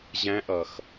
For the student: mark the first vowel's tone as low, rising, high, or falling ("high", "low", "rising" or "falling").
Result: rising